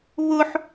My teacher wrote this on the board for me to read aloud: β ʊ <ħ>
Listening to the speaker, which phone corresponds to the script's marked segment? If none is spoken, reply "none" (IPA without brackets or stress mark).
ħ